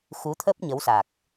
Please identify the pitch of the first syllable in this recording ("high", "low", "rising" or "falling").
rising